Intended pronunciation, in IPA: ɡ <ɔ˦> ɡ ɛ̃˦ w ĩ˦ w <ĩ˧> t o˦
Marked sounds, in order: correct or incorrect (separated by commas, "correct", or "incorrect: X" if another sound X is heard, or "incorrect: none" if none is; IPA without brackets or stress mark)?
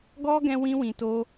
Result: correct, correct